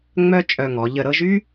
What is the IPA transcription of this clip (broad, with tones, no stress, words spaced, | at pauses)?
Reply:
ŋ͡mœ˥t͡ʃʼœ˧ŋɔ˩˧ ʎə˧˩ɾɤ˥˧ʒy˥